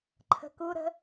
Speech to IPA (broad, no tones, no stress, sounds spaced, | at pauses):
ǃʰ ə̤ k u ɾ ə̤